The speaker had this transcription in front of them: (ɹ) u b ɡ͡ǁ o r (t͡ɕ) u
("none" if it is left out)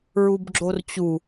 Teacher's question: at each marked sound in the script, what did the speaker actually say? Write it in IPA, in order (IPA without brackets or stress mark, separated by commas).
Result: ɹ, t͡ɕ